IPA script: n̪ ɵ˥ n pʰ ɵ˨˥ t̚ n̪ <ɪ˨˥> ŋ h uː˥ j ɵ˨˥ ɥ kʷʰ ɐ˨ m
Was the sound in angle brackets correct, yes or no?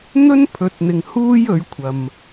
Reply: no